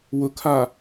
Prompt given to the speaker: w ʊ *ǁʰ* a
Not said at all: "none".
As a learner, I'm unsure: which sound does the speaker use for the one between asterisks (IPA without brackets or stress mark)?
kʰ